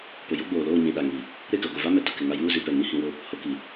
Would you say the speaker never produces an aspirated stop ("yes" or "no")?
yes